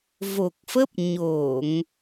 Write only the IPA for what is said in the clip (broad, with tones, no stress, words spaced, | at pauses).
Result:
vo˨˩k̚fə˦˥p̚ ɲo˧˩˨ŋ